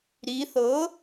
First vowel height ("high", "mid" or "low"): high